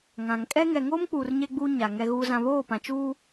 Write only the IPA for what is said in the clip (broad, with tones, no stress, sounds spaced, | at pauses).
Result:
ŋ ã˨ ŋ kʼ ɛ˦ ŋ ɛ˨ ŋ oː˦ m k͡p uː˨ r ɲ e˦ ɡ͡b uː˦ ɲ a˨ ŋ ɛ˦ ɣ uː˦ z ã˦ β oː˦˨ p ã˨ t͡ʃ uː˦